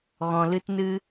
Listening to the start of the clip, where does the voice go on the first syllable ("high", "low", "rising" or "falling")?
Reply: low